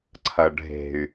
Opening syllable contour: low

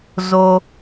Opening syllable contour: low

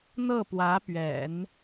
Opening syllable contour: falling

